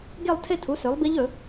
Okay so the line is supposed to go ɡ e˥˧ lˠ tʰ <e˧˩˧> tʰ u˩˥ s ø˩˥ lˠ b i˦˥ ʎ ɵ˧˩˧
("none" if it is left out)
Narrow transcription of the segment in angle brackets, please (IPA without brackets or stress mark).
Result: e˥˧